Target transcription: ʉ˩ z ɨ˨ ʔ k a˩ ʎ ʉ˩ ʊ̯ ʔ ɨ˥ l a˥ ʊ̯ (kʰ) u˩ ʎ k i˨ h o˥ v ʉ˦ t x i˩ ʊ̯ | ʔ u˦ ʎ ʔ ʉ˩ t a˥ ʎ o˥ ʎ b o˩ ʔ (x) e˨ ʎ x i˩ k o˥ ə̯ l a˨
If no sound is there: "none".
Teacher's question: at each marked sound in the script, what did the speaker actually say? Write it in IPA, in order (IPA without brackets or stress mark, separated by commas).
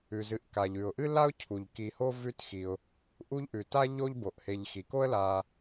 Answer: cʰ, h